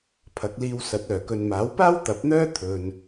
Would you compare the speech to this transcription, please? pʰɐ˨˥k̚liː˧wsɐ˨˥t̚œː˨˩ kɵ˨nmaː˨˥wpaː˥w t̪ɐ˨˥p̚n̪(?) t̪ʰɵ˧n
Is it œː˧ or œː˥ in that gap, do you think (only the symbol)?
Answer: œː˥